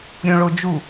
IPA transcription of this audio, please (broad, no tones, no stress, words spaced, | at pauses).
ɾʲõɭod͡ʒu